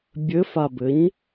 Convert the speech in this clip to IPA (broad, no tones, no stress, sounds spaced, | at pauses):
bʲ ɘ f a b ɘ ɲ